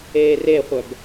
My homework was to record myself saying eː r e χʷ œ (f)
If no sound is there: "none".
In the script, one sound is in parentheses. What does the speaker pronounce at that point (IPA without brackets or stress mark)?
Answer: b